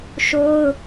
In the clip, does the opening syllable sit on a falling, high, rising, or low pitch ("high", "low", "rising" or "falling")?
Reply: high